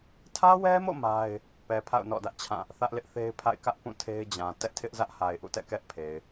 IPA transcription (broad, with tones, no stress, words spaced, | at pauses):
tʰä˦wɛ˦mo̰˦˨ ma˦ɪ̯ | pɛ˨pʰa̰˦˨ʊ̯ nɔ̰˦˨dä˦ʔt͡ɕʰã˦˨ | θä˦ʔlɪ˦ʔθe˦ɪ̯pʰa̰˦˨ɪ̯ kä˦ʔ pũ˦˨tʰe˦ɪ̯d͡ʑã˨ tɛ˦ʔtʰɪ˦ʔzä˦ʔha˨ɪ̯ ʔṵ˦˨tɛ̰˦˨kɛ˦ʔpʰe˨ɪ̯